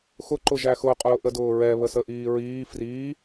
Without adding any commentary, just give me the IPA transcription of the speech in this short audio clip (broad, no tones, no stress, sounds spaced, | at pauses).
x ʊ ǃ ʊ ʒ æ x ʊ qʼ ʊː ʔ ə d ʊː ɹ ɛ β ə s ə ʔ iː ɹ iː f r iː